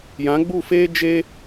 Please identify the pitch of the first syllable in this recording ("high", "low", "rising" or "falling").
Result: rising